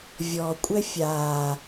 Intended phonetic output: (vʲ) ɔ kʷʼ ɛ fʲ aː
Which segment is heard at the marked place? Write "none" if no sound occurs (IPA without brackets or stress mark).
vʲ